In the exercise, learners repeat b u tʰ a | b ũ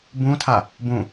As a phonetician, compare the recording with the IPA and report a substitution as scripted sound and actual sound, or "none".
u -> ũ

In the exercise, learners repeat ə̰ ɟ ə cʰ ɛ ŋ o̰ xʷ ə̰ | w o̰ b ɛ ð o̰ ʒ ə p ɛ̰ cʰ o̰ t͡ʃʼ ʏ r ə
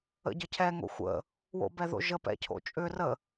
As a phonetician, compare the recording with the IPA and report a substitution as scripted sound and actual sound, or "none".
none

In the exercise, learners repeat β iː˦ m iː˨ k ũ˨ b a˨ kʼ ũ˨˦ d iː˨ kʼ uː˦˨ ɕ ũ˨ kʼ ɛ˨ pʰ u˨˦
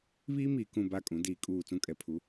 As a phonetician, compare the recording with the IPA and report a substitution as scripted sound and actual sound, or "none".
ɕ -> t͡s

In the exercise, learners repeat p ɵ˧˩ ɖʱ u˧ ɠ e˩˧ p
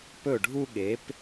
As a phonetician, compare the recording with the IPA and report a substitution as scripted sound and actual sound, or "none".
none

